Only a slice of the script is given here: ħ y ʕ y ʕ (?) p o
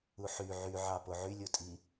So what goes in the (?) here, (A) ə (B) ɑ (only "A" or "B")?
B